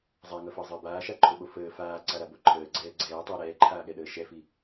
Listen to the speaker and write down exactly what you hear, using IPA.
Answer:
zˤ a ŋ ʌ f əː zˤ əː b aː ʃ a ǃʰ o ɓ o f əː f aː ǀ a ɾ a b o ǃʰ əː ɡ͡ǀ ɛː ɡ͡ǀ ɛː tˤ əː ɾ ɛː ǃʰ aː ɠ ɛ ɗ əː ʃ ɛ f i

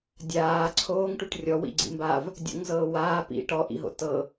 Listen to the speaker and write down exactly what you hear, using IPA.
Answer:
dʲ aː ǀʰ oː ŋ ʈ u ʈ rʲ ɔ w ḭ ɡ͡ǀ ḭ m b a v | dʲ o̰ ŋ z ɤː w aː p ḭ ʈ ɔ ʔ ḭ ɦ o̰ t ɤ

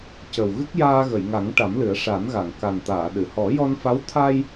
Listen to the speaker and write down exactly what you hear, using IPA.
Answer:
c ə˨˩ w ɣ ɨ˦˥ k̚ j aː˧ ɣ ə˨˩˨ j ŋ a˨˩˦ ŋ ʈ a˨˩˦ m l ɨ˨˩˦ ə̯ ʂ a˨˩˦ n ɣ a˨˩˨ ŋ k a˨˩ n t̪ aː˨˩˨ ɗ ɨ˨˩˨ h ɔ˨˩˦ j ɔ˧ n f a˧˥ w t̪ʰ aː˧ j

